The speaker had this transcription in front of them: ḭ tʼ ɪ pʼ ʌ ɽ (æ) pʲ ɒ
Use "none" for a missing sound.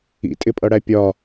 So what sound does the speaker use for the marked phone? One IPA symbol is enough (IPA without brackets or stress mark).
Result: æ